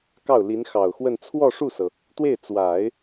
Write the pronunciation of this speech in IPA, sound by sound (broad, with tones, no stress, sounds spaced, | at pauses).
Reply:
k ɑ˥˩ ʊ̯ l i˧˥ n x ɑ˨˩ ʊ̯ x w ə˥˧ n t͡sʰ w ɔ˥˧ ʂ u˥˩ s ɤ˩ | t̪ w e˥˩ ɪ̯ t͡s w a˨˩˦ ɪ̯